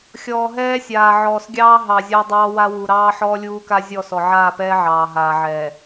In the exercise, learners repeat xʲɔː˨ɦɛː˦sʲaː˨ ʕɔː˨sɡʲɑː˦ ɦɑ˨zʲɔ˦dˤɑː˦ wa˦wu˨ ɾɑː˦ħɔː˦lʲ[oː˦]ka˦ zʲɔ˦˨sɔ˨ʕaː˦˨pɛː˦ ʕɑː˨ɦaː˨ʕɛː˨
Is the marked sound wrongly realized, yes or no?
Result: yes